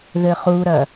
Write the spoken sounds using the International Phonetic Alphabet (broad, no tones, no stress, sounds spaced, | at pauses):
ð ɘ χ u ɾ ɐ